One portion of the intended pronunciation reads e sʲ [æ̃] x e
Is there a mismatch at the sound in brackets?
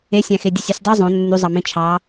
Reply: no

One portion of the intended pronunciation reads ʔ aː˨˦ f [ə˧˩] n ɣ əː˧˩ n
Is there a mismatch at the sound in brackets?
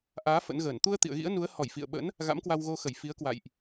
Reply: yes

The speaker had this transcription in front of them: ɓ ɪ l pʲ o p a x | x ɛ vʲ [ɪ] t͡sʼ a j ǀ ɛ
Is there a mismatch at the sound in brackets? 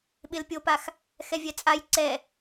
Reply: yes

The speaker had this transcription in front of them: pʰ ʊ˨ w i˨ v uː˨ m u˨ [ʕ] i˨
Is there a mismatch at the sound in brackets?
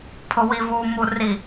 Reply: yes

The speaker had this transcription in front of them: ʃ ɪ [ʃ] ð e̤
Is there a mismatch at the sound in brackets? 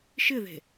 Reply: yes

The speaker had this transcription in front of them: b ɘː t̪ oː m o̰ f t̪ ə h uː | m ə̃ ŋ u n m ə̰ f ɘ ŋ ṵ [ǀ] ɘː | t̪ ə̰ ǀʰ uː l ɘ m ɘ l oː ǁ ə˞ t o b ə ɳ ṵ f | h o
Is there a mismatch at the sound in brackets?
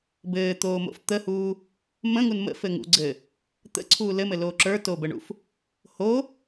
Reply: yes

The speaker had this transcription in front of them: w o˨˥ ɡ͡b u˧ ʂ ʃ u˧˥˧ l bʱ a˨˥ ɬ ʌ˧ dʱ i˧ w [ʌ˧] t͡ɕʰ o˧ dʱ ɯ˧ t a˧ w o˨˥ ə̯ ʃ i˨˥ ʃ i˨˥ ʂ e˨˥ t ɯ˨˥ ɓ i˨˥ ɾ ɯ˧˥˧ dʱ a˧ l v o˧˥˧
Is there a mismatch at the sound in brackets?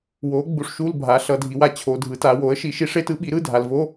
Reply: yes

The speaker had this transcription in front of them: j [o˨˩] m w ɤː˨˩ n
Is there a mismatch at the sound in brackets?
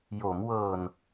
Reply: yes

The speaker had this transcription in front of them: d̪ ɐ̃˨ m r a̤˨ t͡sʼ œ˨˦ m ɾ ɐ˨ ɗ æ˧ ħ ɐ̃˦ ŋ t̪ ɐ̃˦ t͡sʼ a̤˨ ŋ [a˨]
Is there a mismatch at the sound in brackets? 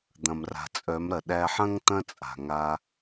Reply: yes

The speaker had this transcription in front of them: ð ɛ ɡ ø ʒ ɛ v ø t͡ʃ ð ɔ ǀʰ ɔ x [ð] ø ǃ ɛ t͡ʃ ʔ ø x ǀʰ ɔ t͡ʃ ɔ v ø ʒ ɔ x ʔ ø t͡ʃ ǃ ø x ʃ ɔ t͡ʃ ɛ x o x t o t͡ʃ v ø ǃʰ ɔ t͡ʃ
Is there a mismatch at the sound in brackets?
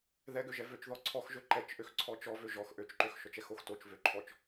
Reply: yes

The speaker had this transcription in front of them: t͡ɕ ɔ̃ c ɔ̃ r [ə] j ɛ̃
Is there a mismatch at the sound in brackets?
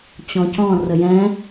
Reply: no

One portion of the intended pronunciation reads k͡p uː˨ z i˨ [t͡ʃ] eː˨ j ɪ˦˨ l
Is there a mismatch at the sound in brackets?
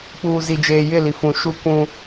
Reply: yes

